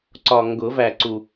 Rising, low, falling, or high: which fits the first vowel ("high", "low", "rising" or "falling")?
low